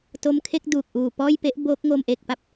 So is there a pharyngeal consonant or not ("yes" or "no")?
no